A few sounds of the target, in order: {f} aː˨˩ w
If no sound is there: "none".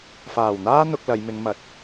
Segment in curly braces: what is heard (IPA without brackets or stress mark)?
f